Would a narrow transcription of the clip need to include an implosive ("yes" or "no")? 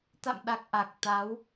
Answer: yes